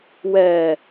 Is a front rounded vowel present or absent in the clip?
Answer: absent